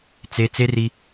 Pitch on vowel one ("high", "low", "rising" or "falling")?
high